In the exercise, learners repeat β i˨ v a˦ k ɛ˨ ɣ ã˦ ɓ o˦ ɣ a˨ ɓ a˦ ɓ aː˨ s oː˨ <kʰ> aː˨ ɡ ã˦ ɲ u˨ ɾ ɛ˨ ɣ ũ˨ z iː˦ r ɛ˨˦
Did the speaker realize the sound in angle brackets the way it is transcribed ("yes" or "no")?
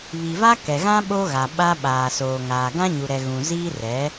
no